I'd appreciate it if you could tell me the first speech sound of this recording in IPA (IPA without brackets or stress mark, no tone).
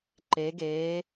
ǃ